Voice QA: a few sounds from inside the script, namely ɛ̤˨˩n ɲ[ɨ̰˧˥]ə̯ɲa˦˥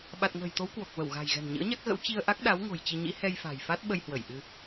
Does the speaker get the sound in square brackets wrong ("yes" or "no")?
no